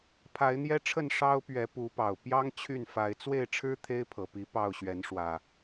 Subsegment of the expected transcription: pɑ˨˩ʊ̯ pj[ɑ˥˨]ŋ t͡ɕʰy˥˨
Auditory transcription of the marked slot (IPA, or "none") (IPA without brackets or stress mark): ɑ˦